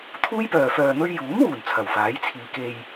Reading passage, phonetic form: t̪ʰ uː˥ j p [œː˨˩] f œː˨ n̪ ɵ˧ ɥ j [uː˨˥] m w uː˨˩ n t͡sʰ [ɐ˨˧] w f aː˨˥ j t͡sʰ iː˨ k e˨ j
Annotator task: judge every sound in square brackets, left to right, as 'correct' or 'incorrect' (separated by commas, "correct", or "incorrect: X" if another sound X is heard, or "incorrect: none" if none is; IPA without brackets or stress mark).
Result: incorrect: œː˨, correct, incorrect: ɐ˨˩